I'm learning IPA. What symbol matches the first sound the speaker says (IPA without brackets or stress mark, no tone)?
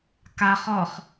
k